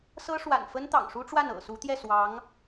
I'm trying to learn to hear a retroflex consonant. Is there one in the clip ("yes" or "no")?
yes